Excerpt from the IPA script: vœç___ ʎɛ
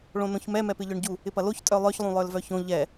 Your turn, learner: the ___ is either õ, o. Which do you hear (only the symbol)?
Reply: õ